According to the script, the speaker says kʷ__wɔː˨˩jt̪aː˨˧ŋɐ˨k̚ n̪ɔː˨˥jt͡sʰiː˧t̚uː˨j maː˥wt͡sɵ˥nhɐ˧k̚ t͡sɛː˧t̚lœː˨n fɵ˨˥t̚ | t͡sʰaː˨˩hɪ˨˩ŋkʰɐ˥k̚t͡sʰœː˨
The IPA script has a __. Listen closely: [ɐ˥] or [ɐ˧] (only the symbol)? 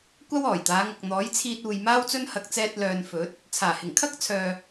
ɐ˥